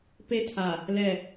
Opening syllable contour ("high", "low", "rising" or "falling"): high